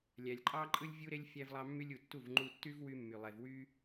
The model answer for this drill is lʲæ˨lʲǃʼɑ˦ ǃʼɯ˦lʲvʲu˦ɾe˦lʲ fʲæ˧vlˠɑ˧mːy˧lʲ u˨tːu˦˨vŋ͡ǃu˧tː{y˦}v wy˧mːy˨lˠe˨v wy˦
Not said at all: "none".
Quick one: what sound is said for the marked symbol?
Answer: y˦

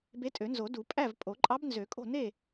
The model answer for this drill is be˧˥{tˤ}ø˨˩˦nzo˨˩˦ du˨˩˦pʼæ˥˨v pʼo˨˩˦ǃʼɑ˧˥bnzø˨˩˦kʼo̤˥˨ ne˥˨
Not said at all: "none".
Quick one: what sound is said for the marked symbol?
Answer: tʼ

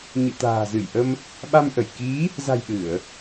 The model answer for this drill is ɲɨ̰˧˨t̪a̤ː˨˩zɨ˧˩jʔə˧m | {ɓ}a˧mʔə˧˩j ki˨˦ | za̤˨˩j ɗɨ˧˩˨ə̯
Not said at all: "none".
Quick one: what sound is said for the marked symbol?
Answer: ɓ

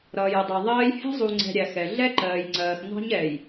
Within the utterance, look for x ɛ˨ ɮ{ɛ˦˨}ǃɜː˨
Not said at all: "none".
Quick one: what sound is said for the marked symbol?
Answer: ɛ˦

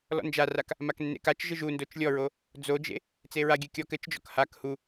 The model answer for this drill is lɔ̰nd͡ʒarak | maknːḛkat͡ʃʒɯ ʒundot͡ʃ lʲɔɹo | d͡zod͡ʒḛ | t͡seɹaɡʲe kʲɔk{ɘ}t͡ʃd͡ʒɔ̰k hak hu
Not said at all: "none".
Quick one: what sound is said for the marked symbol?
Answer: ɘ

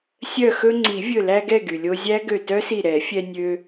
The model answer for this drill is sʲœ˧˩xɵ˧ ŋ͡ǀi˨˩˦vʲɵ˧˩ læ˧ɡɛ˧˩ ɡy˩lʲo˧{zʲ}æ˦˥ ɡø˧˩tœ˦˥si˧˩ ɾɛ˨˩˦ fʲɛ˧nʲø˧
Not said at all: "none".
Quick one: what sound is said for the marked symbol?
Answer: zʲ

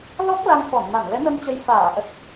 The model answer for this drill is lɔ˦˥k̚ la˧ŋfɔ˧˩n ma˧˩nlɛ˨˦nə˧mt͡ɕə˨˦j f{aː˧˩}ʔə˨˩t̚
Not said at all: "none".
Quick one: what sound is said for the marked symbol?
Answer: aː˧˩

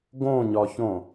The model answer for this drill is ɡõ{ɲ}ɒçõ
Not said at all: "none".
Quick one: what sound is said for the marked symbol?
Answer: ɲ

